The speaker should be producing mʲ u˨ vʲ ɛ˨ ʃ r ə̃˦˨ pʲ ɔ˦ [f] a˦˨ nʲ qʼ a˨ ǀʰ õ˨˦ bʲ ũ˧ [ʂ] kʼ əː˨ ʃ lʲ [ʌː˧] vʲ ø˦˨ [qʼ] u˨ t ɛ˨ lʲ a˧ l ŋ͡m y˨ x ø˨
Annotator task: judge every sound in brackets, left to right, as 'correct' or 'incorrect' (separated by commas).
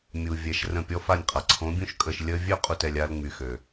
correct, incorrect, incorrect, correct